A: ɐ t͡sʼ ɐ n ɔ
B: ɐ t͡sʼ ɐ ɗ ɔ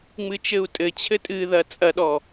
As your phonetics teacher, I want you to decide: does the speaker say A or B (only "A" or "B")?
B